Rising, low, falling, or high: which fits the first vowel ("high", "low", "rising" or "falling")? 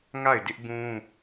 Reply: falling